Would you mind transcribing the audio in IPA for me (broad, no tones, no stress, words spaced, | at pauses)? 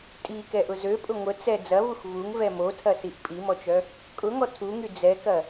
tʼikɛʔʊ zøpʼʊ ŋʷət͡sɛ d͡zɐvux vuŋvɛ motʰɐsiʔ pʼimɔt͡ʃœ | kʼʊŋɔ tʰuŋy d͡zɛkɐ